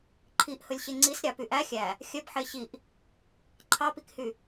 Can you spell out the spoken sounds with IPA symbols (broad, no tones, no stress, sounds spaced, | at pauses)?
ǃʰ i ʔ h ɵ lʲ ɕ e ŋ͡ǀ i s ɾʲ ɑ p y ʔ æ xʲ æ | xʲ œ b ħ e ɕ i ʔ | ǃʰ ɑ p i k h y